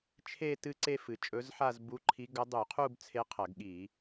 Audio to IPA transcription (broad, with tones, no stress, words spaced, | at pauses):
t͡ʃʰe˥˧ tɨ˥˧ǀe˥˧fɨ˨˩ t͡ʃʼɵ˧˥zħa˥˧zbu˧˥ǃʰi˧˥ ɡɐ˧˥dˤu˧˩˧qʰu˥˧b t͡sʰe˧˥qʰɐ˧˩˧ɡɠi˧˩˧